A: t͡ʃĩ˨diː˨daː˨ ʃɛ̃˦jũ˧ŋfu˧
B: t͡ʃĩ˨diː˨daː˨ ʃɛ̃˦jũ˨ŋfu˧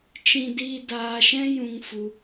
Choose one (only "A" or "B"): A